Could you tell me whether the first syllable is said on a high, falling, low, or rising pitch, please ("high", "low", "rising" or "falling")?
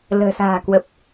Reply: low